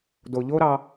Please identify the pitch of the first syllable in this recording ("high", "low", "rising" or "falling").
low